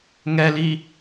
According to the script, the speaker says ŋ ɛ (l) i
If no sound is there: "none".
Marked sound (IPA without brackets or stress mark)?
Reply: l